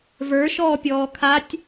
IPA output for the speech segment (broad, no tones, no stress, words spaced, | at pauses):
və˞ʃɔːpʲɔː kʰatʲ